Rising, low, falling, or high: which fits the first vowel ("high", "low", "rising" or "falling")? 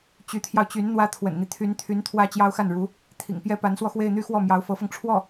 rising